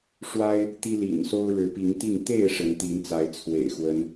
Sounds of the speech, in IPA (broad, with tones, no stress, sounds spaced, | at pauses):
ʂ w a˦ ɪ̯ | t̪ i˦ l ḭ˨˩ n s o˦ ʊ̯ ɻ ɻ̩˨˦ p i˨˦ ŋ t̪ i˥˨ ŋ t̪ e˥˨ ɪ̯ ʂ ə˨˦ n t̪ i˨˦ n t͡s a˨˦ ɪ̯ t͡sʰ w ḛ˨˩ ɪ̯ x w ə˨˦ n